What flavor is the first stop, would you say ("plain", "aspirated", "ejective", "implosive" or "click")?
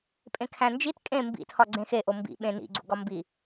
ejective